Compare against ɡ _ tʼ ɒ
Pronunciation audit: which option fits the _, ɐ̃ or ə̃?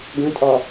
ə̃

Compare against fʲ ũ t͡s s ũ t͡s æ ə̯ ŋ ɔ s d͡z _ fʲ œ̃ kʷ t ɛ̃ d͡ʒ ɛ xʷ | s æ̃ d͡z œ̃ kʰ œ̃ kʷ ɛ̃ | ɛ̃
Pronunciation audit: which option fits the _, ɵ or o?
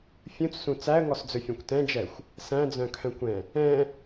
ɵ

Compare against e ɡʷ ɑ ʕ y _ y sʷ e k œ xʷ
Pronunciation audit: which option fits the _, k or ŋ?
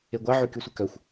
k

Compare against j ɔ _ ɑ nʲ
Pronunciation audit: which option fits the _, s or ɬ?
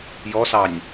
s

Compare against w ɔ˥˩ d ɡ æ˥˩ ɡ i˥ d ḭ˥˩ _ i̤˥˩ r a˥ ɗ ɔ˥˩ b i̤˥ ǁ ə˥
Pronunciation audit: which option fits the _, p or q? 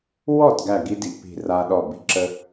p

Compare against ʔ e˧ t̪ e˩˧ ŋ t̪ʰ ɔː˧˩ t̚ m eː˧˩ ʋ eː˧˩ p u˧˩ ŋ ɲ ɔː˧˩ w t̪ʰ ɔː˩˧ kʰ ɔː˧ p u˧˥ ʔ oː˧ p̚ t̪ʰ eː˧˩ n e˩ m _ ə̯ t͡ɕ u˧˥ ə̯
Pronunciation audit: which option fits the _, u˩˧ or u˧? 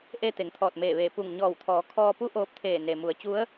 u˩˧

